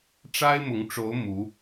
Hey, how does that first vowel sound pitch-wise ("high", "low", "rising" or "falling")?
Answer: high